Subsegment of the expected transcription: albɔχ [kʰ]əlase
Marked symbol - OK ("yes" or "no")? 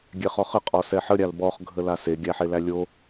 no